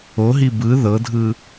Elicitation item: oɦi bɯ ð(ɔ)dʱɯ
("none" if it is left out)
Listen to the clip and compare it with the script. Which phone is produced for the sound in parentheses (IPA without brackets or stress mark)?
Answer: ɤ